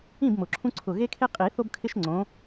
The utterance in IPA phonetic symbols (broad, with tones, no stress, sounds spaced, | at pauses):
ĩ˥˨ b m ʊ˨˩ ǁʰ ũ˦ ǀʰ ʊ˨˩ ɣ e˦ kʰ e˦ qʼ i˨˩˦ θ o˦ b kʰ ɪ˦ ʃ ŋ͡ǀ õ˨˦